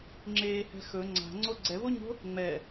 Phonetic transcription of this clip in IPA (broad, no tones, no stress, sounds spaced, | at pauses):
ŋ͡ǁ eː h ɛ̤ x ɵ ŋ͡ǀ a̤ ŋ͡ǀ o ɡ͡ǀ ɛ v o ɲ o̤ | ŋ͡m ɛ